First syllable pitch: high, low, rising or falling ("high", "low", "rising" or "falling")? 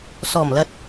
low